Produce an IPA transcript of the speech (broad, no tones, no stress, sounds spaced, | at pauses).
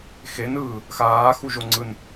x e n ɯː | x aː x u ʒ o ŋ͡ǀ ɯ n